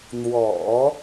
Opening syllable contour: low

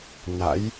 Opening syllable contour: rising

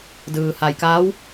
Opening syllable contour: low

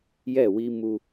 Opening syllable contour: falling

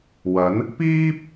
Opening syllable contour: rising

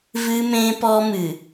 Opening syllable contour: high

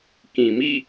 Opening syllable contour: low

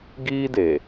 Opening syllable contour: high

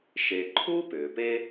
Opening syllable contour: low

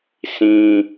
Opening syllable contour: high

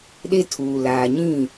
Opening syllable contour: high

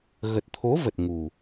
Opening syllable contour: low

